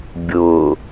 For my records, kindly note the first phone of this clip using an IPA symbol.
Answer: bʲ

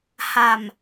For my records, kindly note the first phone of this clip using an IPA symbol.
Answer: h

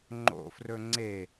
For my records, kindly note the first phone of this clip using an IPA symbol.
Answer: ŋ͡ǃ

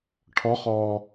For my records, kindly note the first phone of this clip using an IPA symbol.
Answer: ʈʰ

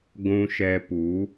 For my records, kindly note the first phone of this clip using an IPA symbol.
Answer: ɡʷ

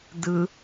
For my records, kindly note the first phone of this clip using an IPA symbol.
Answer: d̪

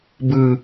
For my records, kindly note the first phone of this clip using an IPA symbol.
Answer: b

